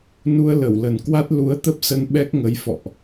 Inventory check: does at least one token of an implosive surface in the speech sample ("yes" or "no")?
yes